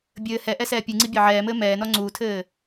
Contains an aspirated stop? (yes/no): yes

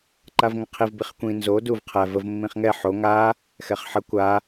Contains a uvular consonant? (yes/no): yes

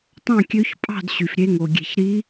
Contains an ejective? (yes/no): yes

